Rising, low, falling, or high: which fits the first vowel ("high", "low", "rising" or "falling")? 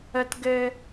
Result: high